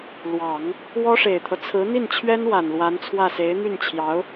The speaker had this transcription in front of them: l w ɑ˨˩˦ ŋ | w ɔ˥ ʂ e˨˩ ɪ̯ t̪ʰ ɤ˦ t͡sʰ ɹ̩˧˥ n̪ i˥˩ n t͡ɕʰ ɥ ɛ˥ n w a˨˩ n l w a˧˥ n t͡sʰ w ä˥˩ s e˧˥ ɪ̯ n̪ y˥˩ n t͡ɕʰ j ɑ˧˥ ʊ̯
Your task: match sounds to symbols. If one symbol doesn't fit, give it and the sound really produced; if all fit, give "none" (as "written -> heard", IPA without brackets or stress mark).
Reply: none